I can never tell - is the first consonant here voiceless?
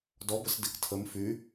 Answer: no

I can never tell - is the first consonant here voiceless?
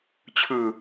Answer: yes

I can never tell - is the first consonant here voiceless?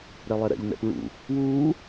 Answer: no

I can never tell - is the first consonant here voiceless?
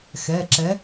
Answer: yes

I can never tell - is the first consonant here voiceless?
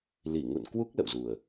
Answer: no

